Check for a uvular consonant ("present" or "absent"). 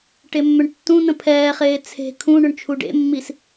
present